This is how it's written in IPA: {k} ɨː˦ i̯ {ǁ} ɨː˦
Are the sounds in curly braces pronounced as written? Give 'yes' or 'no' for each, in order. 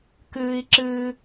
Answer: yes, yes

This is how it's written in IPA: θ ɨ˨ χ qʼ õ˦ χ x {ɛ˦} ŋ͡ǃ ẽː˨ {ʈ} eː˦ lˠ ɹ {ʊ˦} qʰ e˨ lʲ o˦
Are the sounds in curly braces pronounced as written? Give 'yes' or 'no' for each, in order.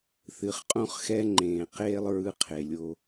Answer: yes, no, no

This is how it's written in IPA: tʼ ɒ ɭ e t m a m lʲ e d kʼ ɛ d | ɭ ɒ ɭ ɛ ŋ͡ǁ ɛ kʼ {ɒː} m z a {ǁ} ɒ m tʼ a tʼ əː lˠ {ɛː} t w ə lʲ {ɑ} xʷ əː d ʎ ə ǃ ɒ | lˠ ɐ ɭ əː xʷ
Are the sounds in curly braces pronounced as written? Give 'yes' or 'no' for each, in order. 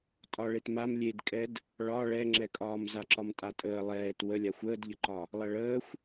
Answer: yes, yes, yes, no

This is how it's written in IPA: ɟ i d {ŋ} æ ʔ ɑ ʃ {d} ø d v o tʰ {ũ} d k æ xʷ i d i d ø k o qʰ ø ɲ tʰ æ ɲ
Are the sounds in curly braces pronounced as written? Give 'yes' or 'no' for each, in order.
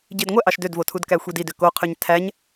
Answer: no, yes, no

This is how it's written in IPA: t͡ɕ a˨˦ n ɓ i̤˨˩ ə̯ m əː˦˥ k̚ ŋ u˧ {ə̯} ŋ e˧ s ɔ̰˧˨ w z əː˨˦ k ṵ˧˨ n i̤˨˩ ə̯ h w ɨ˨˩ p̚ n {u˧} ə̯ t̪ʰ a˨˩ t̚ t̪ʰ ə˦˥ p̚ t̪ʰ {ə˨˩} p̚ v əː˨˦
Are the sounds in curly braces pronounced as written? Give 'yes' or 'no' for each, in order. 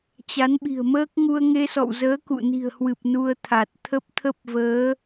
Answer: yes, yes, no

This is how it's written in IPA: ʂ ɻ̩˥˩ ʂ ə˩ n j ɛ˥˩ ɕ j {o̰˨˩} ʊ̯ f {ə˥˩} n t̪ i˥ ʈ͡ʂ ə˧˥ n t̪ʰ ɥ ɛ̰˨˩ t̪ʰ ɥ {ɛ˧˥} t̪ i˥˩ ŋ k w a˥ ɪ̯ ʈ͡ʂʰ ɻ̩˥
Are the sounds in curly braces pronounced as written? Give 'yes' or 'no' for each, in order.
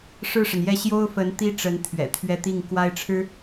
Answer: no, no, no

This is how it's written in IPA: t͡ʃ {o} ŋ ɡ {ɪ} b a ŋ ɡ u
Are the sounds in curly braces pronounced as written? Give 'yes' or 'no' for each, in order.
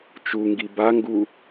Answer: no, no

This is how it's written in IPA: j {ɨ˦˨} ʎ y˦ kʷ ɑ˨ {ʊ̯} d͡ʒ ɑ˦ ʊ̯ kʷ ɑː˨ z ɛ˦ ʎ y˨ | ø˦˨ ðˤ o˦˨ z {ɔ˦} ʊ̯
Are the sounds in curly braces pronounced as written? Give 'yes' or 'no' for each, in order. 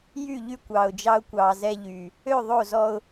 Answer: no, yes, yes

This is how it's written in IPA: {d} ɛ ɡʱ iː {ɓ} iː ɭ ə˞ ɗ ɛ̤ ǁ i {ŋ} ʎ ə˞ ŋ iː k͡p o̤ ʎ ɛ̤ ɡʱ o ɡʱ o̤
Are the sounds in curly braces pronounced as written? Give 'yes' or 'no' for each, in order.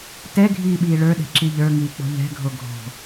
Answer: no, yes, no

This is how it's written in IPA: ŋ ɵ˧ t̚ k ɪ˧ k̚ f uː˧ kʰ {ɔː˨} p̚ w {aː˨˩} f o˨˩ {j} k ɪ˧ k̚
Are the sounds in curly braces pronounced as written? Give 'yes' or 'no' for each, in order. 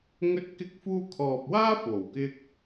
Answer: yes, no, no

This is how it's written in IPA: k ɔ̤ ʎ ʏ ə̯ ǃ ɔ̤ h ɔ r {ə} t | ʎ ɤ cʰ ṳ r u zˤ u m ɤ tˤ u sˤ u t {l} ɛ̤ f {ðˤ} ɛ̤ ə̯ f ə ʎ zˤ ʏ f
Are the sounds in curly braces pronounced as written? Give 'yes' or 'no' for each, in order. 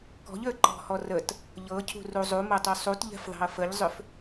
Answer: yes, no, yes

